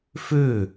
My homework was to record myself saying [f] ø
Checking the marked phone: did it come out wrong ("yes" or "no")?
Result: no